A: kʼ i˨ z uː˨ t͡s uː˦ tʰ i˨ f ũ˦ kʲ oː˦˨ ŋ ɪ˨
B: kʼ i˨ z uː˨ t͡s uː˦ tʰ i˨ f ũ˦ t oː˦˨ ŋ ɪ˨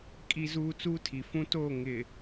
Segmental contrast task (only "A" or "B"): B